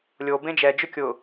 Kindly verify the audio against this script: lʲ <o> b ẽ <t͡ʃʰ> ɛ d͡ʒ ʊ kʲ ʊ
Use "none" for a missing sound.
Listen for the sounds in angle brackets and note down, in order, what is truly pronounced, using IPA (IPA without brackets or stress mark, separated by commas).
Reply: o, d͡ʒ